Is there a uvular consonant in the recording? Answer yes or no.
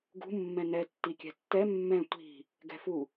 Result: no